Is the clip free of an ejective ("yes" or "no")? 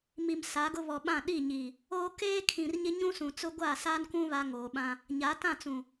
yes